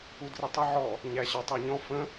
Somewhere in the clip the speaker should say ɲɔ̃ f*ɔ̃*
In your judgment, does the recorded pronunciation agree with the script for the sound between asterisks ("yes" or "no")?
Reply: no